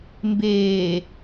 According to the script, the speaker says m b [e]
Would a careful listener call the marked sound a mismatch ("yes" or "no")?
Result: yes